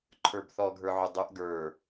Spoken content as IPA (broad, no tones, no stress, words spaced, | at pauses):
ǃʰə˞bθɔɡʱə˞ʕʊ dˤʊʔ ɡə˞